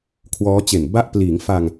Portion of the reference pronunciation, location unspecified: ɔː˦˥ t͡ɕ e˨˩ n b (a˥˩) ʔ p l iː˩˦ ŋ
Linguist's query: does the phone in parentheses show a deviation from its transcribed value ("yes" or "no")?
yes